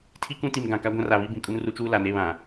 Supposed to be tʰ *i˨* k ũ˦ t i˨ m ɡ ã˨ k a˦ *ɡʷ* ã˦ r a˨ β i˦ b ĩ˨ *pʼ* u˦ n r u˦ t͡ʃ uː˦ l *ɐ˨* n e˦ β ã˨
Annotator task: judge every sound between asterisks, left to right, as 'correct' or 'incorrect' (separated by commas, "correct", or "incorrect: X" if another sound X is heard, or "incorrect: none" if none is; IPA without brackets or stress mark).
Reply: incorrect: i˦, correct, incorrect: kʼ, incorrect: a˨